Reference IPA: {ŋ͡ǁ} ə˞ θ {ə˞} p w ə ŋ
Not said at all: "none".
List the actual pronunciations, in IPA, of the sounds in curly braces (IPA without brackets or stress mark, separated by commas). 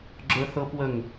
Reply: ɡ͡ǁ, ɤ